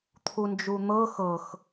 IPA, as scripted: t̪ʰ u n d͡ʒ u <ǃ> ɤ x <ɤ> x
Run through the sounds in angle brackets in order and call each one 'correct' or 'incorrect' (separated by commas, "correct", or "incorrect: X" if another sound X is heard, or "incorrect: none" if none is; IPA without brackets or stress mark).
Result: incorrect: n̪, correct